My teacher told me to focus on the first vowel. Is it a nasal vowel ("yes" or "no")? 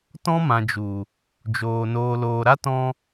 yes